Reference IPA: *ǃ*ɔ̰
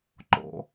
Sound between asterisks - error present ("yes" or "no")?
no